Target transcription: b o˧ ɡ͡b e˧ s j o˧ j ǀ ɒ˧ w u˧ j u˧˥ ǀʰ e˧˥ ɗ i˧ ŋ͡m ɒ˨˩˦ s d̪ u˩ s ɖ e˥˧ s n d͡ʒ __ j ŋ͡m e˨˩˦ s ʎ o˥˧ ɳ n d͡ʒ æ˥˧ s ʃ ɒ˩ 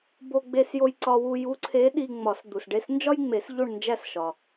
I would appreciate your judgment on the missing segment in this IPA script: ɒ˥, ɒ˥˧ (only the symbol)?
ɒ˥